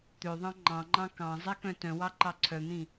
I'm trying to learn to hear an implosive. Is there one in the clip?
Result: no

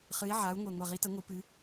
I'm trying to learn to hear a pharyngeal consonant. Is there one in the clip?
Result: yes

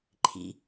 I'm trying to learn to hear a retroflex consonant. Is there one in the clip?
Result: no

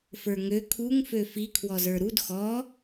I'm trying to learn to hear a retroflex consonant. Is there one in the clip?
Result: no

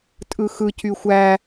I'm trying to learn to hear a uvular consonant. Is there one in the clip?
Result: no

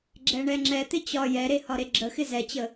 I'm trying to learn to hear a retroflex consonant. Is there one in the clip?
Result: yes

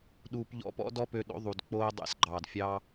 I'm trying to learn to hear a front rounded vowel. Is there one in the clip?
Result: yes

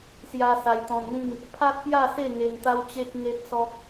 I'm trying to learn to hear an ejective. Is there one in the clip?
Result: no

